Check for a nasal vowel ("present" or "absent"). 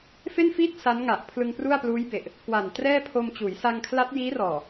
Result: absent